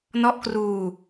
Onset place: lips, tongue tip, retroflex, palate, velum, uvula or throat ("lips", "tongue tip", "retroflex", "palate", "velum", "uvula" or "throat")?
tongue tip